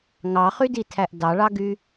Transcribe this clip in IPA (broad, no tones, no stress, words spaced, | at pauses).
ŋɑχyditʰæʔ dɑɭɑɡy